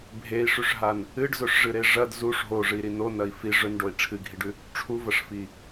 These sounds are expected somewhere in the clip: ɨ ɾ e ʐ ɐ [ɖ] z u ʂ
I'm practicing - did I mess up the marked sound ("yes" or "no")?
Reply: yes